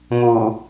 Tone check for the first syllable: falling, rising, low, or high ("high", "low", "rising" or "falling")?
low